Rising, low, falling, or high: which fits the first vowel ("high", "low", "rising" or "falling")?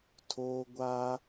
high